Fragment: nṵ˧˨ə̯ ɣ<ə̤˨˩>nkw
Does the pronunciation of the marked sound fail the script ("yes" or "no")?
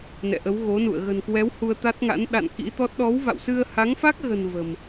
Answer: no